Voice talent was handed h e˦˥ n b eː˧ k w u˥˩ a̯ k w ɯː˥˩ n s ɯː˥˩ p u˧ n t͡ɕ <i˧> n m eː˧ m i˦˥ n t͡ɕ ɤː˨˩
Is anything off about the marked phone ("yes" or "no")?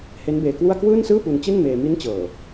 yes